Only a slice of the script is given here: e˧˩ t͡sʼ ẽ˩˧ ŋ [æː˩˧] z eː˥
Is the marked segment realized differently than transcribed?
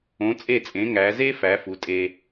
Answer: no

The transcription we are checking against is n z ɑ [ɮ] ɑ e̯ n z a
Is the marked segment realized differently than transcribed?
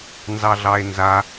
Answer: no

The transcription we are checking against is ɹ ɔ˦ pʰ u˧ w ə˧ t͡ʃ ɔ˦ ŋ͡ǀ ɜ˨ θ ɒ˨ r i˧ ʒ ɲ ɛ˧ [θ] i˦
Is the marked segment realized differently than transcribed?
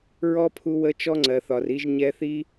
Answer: no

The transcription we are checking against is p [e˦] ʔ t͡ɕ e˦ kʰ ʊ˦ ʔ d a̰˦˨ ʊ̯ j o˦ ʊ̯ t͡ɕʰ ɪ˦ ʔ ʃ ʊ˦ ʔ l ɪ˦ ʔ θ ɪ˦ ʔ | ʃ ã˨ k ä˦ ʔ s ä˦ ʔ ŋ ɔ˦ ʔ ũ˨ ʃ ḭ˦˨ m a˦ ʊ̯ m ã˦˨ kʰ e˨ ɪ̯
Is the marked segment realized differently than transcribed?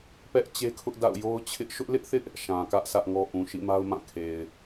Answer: yes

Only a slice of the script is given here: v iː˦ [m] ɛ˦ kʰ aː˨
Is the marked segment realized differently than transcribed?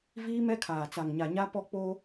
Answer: no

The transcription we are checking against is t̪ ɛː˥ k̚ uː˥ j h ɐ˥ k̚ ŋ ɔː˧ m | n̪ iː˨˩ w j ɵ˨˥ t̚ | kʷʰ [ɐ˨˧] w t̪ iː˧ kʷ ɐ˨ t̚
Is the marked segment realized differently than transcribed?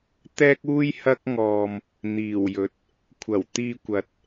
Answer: yes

